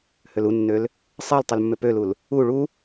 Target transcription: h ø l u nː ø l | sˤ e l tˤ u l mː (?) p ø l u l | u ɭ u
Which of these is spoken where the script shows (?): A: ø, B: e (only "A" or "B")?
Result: A